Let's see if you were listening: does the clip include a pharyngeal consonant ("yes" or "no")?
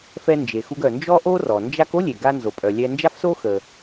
no